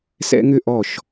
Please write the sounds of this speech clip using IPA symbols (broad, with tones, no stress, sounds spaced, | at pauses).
s ɛ̰˦ ŋ ʏ˦ ʔ ɔ˦˨ ʃ